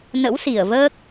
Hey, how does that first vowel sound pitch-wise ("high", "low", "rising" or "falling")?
rising